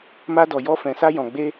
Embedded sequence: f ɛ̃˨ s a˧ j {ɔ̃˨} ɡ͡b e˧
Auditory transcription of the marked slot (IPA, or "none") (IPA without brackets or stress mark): ɔ̃˨